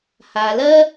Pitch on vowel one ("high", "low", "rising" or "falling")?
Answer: low